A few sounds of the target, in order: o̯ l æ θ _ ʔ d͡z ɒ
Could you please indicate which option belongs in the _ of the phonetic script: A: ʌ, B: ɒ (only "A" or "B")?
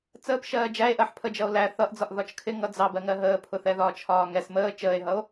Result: A